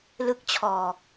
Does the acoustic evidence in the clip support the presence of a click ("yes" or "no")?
no